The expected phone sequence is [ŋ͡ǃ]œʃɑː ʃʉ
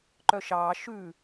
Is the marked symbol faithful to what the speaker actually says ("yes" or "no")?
no